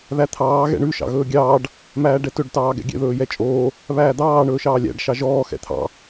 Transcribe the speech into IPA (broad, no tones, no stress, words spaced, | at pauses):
ðæt̪ʰɑː ɣɛ̰ɳʉ ʃɑ̰ɣɵːɡʲɑːɖ | mæːɖɛtɵɖ tɑːɡɛ̰ɡʲɛ̰ ðɵːjɛt͡ʃʼoː | βæːd̪ɑː ɳɵːʃɑːlʲæ̰ɖ ʃɑʒɔː xɛ̰t̪ʰɑ̰